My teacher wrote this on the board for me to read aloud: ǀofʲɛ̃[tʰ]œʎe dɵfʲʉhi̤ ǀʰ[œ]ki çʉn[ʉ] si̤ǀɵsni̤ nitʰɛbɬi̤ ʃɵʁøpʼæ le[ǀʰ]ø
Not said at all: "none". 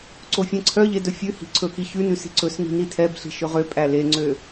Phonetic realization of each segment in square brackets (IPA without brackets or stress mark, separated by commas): ǀʰ, ɵ, ʉ, ŋ͡ǀ